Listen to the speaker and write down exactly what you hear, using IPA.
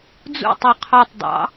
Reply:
d͡z ṵ tˤ u qʰ ɑ tˤ dˤ ɑ̰

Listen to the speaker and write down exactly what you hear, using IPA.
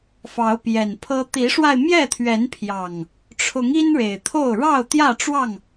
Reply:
f ɑ˨˦ ʊ̯ p j ɛ˨˩ n pʰ ɤ˦ t̪ i˨˦ ʂ w a˧ ɪ̯ m j ɛ˥˨ t̪ʰ ɥ ɛ˨˦ n pʰ j ɑ˨˩ ŋ | ʈ͡ʂʰ ʊ˨˦ ŋ i˦ n ɻ e˨˩ ɪ̯ t̪ʰ o˥˨ ʊ̯ ɻ ɑ˥˨ ʊ̯ t̪ j ä˥˨ ʈ͡ʂ w ɑ˥˨ ŋ

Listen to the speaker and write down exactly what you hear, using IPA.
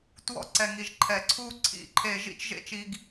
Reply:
t w ɔ̰˧ ǀ ɛ˩ ŋ i˩ ʒ ǃʰ ɛ˩ ǀʰ u˧ ǀʰ ḭ˥ ǃʰ e˧ ʒ ḭ˥ t͡ʃ ʒ ḛ˥ t͡ʃ i˧ ɡ

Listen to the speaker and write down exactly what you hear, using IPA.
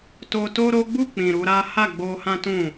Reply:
t o˧ t o˦ ɾ o˦ ɡ͡b u˦˨ k͡p ĩ˨ ɾ u˨˦ ɾ a˦ h a˦˨ ɡ͡b o˧ h ã˦ t ũ˦˨

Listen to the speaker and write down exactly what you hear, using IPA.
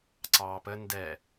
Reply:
ǀ ɑː p ə n d ɛ

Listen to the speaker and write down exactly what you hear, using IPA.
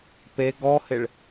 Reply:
p e ɡ ɔ h ɪ ɭ

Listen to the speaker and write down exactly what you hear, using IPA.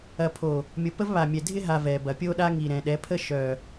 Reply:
ɐ˨ pʰ o˨ | mʲ o˨ p ə˦ v β a˨ mʲ ɛ˨ dʱ ɪ˦ ɦ a˨ v ɛ˨ b ɐ˨ pʲ o˦ ɗ a˦ ŋ i˨ ɾ ɛ̃˨ ɗ ɛ˨˦ pʰ ə˦ ʃ œ˨

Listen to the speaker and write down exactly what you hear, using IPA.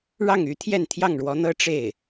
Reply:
ɻ ɑ˥˩ ŋ y˧˥ t̪ʰ j ɛ˥˧ n t̪ʰ j ɑ˥˩ ŋ ɻ w ɔ˧˥ n̪ ɤ˥ ʈ͡ʂ e˥˩ ɪ̯

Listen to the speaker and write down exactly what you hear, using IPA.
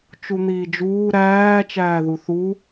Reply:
t͡ʃ u n̪ iː d͡ʒ uː ɾ æː t͡ʃ æː ð u θ u

